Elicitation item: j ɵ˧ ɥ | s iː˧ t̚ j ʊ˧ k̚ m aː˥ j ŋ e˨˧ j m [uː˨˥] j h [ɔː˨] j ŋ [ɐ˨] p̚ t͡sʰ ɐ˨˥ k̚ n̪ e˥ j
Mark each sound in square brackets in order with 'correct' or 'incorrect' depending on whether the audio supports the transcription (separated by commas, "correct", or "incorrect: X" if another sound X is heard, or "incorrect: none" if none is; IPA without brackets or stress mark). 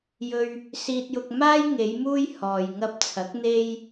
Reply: incorrect: uː˥, correct, incorrect: ɐ˧